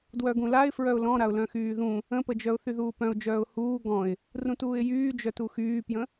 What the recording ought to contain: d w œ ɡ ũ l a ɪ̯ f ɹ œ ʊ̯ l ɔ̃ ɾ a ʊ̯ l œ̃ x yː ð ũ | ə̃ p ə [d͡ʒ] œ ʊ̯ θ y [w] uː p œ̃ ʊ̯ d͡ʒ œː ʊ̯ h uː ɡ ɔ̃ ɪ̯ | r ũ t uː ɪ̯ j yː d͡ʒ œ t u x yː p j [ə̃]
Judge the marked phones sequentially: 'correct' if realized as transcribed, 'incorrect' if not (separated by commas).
correct, incorrect, correct